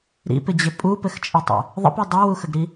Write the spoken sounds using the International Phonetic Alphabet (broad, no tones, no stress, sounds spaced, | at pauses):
ɾ ḭ p ɪ d͡ʑ ɪ pʼ u p ɘ x t͡ʃʼ ɘ tˤ ə̰ | ðˤ ə̰ p i dˤ a w u x ə ɡ ɾ i